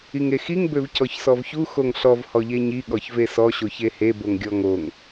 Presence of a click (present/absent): absent